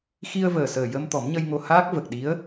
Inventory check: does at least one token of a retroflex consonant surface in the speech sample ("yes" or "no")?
no